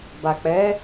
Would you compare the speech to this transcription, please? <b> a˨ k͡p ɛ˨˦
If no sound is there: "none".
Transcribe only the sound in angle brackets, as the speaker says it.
b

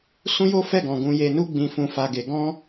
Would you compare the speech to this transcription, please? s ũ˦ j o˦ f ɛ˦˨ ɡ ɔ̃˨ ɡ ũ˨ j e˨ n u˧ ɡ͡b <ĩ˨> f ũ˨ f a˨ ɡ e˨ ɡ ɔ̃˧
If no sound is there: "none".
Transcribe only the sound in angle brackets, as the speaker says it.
ĩ˨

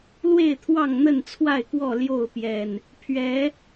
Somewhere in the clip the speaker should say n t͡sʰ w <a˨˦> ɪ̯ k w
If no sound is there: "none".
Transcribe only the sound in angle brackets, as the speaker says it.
a˥˨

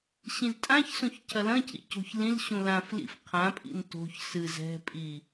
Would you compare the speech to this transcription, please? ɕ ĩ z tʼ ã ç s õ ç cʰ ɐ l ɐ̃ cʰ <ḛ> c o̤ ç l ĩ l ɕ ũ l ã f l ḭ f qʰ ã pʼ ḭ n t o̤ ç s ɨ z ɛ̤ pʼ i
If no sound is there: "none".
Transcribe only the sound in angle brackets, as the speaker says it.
ḭ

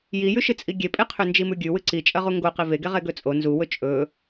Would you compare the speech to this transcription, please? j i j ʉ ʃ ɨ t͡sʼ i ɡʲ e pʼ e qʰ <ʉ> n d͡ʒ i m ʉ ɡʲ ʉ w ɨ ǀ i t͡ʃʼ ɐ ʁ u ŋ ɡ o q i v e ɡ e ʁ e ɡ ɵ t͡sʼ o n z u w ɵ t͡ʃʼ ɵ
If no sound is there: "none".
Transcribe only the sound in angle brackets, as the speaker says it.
ʉ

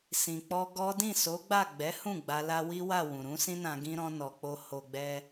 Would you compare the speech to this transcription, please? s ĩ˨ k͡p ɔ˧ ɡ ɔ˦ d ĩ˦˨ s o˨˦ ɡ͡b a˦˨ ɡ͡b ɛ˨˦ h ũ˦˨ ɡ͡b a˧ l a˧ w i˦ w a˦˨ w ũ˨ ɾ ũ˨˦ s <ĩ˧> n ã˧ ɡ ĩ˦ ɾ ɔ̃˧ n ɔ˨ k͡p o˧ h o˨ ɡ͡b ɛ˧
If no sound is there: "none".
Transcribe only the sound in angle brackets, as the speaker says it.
ĩ˦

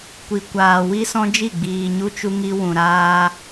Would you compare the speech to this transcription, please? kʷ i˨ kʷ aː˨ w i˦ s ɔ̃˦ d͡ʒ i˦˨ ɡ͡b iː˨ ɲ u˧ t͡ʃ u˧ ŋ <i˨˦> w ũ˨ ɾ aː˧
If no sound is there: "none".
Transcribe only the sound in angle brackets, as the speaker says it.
i˧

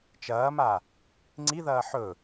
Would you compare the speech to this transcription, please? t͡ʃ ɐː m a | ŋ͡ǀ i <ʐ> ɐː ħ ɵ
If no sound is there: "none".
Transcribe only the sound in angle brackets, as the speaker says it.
ð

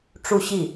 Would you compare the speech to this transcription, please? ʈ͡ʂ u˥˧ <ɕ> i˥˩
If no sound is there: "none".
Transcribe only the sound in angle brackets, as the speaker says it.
ɕ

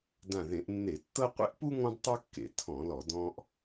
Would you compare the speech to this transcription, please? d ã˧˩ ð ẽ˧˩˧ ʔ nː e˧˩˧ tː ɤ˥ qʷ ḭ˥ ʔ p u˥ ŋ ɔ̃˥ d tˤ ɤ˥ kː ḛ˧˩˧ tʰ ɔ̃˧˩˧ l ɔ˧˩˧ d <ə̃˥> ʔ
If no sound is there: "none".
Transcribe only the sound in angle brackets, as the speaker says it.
ɔ̃˥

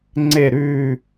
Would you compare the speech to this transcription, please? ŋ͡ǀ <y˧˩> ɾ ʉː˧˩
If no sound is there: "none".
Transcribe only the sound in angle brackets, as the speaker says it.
e˧˩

